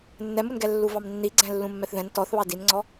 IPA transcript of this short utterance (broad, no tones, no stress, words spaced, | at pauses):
nːɛmunɡɛ lːuvɑmnːiɡ͡ǀɛ̃ lːũmːɛθðɛ̃n tɔθβɑ dinŋ͡ǀɔ